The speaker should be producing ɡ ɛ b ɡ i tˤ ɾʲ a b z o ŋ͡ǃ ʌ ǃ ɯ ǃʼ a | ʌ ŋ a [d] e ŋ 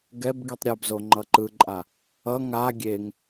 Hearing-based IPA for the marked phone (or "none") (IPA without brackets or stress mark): ɡʲ